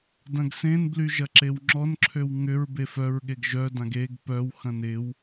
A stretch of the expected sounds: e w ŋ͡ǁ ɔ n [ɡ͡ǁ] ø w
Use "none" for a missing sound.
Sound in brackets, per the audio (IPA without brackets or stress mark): ǁʰ